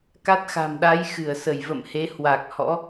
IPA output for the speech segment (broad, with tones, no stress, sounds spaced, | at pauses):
k a˦˥ t̚ x a̤˨˩ m ɗ a˨˦ j x ɨ˧˩ ə̯ s ə˧˩ j v ə̰˧˨ m h e˨˦ h w a˨˩ k̚ h ɔ̰˧˥